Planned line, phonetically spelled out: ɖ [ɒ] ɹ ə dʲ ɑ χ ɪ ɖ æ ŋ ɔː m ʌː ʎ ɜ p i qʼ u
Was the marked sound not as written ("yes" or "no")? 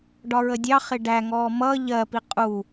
no